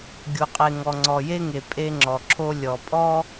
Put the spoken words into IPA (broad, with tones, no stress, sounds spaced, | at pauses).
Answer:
ɡʲ o˨ qʼ e˨ ŋ ɔ˨ ŋ͡ǀ ɔ˨ j e˦ ŋ e˨ pʼ e˦ ŋ͡ǁ ɔ˨ ǁʰ o˦ lʲ ɔ˨ pʼ ɔ˦